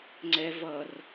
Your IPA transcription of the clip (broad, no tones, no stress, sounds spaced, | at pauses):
ŋ͡ǀ ɛ v ʌ r